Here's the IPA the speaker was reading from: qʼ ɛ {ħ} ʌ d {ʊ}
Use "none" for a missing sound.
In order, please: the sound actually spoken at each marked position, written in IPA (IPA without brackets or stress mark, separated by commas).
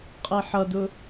ħ, ʊ